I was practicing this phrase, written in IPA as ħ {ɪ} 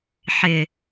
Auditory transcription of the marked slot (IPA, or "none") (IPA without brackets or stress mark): ɪ